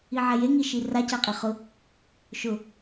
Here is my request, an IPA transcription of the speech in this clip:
iʕɛje ŋiʃira caqʼeχʊ | ʃʊ

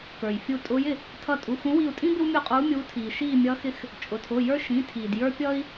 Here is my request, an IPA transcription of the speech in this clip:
kə˞˩jfʲu˧˩ tʼʊː˨˦jɪ˧˩ | tʰʌ˧˩tʼu˩˧˩ xũ˨˦wi˧˩u̯tʼĩ˦ bɪ˦wmʲu˧˩qʼuː˨˦ mʲuː˨˦ tʰiː˩ ʃiː˧˩mʲʌ˨˦xɪ˨˦x | t͡ʃʼʊ˩tʰʊː˩˧˩jə˞˦ ʃĩ˩˧˩tʰiː˩d jə˞˦pʲʌː˦i̯

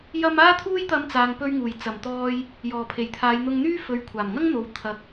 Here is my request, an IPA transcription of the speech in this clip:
jɐ˧m aː˥t̪ʰuː˥jt̪ɐ˧m t͡saː˨ŋpɵ˧ɥŋuː˨˩j t͡sɐ˨˩mt̪ɔː˧j | jɔː˨˩pʰe˨˩jt̪ʰaː˨˧j n̪ʊ˧ŋn̪yː˥ fɵ˨ɥkʷʰaː˨˩mŋɐ˥ŋn̪o˨w t̪ʰɐ˧k̚

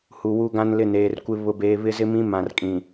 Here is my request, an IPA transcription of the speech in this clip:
hu˨wu˦ɡã˦n lɪ˦˨neː˨rkʷɪ˦ βʊ˦beː˦ βɪ˦zɪ˦mĩ˦ mã˨rkʼĩ˨

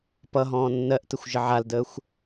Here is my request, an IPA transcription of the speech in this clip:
pʌɦɔ̃ː nːɜʔtəxʷʒə ʕaldəːxʷ

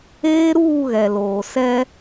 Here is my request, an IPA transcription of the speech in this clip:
eː˦ɾuː˦˨ɣɛ˨ loː˨sɛ˦

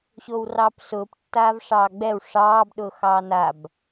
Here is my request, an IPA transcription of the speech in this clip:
ɕowrɑːpsʊːp tːaːvʂɑːɡ͡bɛw ʂɑːb ɗʊːxɑːnab

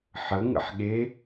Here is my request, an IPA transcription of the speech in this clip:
ħə ŋə̰ħɠe

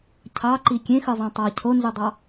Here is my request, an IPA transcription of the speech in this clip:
cʰɑǃi kʲẽxɯzˤæ̃ tˤɑ cʰonzudˤɑ

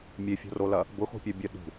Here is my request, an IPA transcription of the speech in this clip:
mʲefʲo̤rolɐ | bʊxo̤pʲɐbʲœ ɗṳ

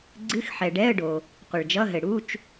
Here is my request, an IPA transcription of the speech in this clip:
ɡ͡ǀɨ˧˥˧xħɛ˨ɖɛ˧˥˧ə̯ɖo˨ | qʷɘ˨ɭd͡ʒʌ˧˥˧ɦɘ˨ ɽu˧˥˧t͡ʃ

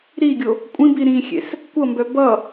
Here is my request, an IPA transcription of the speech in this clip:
ɾiɡʲo | kʷʼĩbi ɾĩxʲḛs | kʷʌmbœ bʌ

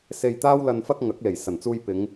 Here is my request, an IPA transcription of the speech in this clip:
se˧j t̪aː˥wlɐ˧nfɐ˥k̚ ŋɐ˨˥k̚ le˨˩j sɐ˨˩nt͡suː˧jpɪ˨˧ŋ

